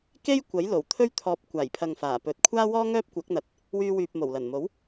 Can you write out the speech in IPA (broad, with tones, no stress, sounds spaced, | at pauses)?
k e˥ j kʷ ɐ˨˥ j l o˨˩ w t̪ʰ ɵ˥ ɥ t̪ʰ ɔː˧ p̚ kʷ aː˨˩ j pʰ ɐ˨ ŋ f aː˨˩ p ɵ˨ t̚ kʷʰ aː˥ w ɔː˥ ŋ œː˥ p̚ kʷ ɐ˨˥ k̚ n̪ ɐ˨ t̚ | w yː˧ w yː˨ p̚ m o˨˩ w l ɐ˨˩ n m o˨˥ w